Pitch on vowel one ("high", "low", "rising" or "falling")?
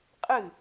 falling